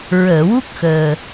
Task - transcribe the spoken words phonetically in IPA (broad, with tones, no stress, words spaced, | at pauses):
ɹəː˨˩˨wu˦˥k̚xəː˨˩